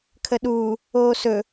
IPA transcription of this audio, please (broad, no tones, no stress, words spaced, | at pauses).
kʰəɗuː | oːsɵ